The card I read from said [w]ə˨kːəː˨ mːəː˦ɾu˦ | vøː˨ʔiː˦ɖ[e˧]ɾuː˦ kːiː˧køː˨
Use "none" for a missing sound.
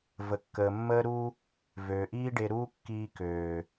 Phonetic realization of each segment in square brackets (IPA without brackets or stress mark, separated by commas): v, e˧